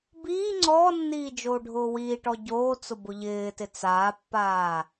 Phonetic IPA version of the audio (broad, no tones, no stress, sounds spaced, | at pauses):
b iː ŋ͡ǀ ɔː nː iː d͡ʒ oː ɖʱ ʊː w iː ʈ ɔ ɟ oː t͡s ʊ b ʊ ʎ ɪː t ɪ t͡s aː pː aː